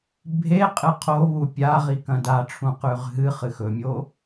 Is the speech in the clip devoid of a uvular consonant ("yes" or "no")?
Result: no